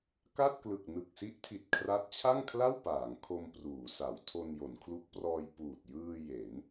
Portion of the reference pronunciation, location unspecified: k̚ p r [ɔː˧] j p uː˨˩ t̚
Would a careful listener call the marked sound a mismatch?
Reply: no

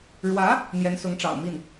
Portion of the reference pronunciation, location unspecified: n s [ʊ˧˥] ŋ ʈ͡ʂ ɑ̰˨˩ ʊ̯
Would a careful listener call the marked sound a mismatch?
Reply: no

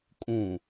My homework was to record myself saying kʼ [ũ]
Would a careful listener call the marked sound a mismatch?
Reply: no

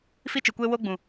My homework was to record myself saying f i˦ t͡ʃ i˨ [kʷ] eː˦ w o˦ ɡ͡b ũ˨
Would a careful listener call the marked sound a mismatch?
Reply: no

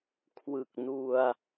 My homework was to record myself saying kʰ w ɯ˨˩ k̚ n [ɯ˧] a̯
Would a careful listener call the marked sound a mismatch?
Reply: yes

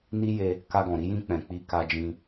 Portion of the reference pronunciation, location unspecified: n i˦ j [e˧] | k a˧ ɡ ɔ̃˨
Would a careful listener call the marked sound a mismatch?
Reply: no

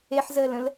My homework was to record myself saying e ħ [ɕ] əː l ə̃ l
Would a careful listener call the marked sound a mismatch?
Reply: yes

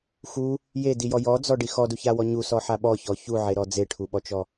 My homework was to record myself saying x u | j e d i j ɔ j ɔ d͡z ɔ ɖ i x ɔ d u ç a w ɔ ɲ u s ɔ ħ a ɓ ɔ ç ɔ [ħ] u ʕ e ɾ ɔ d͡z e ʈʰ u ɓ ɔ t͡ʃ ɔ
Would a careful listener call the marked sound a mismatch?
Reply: yes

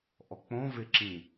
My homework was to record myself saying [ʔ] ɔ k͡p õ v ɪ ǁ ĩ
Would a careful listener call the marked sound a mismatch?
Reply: no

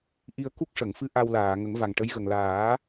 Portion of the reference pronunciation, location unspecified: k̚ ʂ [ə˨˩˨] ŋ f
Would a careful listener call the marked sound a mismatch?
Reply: no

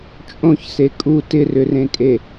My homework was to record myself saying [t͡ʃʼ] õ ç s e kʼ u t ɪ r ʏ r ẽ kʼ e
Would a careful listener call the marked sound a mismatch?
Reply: no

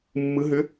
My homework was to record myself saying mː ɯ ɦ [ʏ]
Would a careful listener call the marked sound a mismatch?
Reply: no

